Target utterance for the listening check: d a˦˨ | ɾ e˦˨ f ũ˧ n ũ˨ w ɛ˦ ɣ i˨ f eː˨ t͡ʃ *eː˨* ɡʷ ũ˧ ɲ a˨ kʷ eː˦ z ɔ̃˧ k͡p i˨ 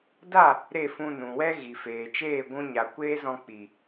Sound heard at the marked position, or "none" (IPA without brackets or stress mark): eː˦˨